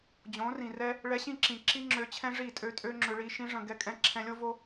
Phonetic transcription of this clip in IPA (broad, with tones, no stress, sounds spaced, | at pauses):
d͡ʑ õ˨˦ r ĩ˨ r ɛ˦ | ɭ ɛ˧ ɕ ĩ˦˨ ǁ ĩ˨ ǁ i˦ ŋ͡ǁ ø˧ t͡ɕʰ ɛ̃˦ ʐ i˦˨ tʼ ø˦ tʼ ø˦ ŋ͡ǁ ʏ˧ ɭ i˧ ʃ ĩ˦ ʐ ə̃˧ ɡ ɛ˧ kʼ ɛ̃˧ ǁʰ ɛ̃˧ lʲ o˦ v o˦